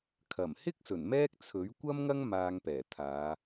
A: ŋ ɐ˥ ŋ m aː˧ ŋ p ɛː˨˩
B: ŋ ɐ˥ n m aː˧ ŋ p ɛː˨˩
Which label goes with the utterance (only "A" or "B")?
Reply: A